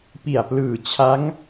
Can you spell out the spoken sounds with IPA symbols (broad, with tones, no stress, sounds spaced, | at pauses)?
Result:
p i˨˩ a̯ p l ɯː˨˩ t͡ɕʰ a˦˥ ŋ